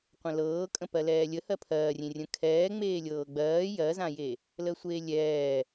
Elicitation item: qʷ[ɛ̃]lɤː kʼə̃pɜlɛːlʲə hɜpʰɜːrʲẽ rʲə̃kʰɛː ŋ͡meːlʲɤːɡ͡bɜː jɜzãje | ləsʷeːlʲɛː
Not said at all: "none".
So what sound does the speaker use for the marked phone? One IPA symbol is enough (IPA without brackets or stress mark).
ə̃